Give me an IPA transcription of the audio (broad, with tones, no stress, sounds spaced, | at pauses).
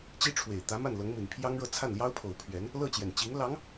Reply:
t͡ɕ i˥ ʈ͡ʂʰ w e˨˩ ɪ̯ t̪ ä˧˥ m a˥˩ n l ɤ˧˥ ŋ m i˨˩ n pʰ j ɑ˥ ŋ ɻ ɤ˥˧ t͡sʰ a˥˩ n l j ɑ˥ ʊ̯ pʰ o˨˩ ʊ̯ pʰ ɥ ɛ˧˥ n | l ɤ˥˩ t͡ɕ j ɛ˨˩ n t͡ɕ i˧˥ ŋ l ɑ˧˥ ŋ